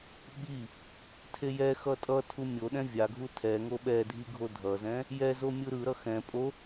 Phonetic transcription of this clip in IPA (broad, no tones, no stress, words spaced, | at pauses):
ɓi | tʰejɛxʌ tʼʌtʰu mʲoɗɛ̃ vʲaɡʱu tʰɛŋo ɓɛ dʱiɡʱodʱʌzɛ̃ | jɛzo mʲɯɾɯɾʌ xɛ̃ pʼo